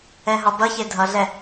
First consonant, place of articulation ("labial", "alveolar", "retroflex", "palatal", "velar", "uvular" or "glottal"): glottal